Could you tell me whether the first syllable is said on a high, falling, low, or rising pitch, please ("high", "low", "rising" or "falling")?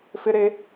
high